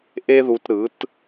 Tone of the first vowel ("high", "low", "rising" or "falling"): high